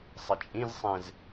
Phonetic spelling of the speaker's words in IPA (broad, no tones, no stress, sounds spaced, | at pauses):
sˤ ɪ t͡ʃʼ ĩ z sˤ ẽ z